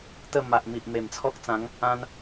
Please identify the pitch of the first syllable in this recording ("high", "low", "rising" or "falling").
falling